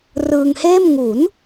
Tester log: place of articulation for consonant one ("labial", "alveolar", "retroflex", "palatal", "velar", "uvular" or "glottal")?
alveolar